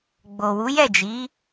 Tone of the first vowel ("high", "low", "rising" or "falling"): low